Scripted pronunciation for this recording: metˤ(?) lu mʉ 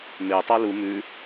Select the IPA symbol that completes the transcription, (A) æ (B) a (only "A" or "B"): B